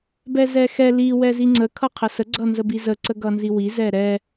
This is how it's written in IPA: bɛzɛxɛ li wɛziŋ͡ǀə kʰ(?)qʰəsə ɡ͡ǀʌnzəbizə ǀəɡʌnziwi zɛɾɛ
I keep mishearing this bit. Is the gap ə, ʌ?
ʌ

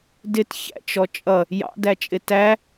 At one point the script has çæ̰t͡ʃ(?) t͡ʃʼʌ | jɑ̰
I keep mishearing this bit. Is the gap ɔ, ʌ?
ɔ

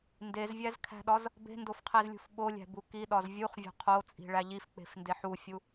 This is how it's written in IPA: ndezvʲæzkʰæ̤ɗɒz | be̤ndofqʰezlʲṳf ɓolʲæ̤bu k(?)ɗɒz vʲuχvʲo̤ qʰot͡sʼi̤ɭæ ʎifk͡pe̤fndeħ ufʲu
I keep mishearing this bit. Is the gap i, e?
i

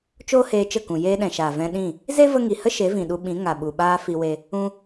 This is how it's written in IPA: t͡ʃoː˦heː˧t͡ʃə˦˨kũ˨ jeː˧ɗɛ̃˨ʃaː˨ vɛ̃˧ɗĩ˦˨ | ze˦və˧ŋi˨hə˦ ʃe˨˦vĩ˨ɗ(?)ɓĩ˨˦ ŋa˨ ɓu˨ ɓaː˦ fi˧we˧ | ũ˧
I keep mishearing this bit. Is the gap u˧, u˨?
u˧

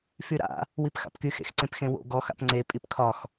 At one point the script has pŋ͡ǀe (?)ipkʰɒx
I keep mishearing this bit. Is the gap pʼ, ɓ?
pʼ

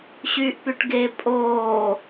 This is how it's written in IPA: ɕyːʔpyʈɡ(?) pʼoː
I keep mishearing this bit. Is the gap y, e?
e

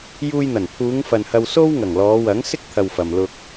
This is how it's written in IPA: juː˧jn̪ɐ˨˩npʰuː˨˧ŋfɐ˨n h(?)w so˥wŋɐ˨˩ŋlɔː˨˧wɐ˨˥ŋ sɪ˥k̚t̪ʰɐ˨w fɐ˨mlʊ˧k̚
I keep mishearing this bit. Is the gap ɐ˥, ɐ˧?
ɐ˧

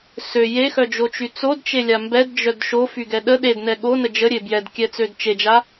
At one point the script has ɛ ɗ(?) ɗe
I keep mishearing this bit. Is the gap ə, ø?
ə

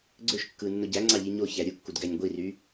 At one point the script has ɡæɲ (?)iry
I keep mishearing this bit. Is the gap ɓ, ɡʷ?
ɡʷ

